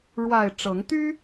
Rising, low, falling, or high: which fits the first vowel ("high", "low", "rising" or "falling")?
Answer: low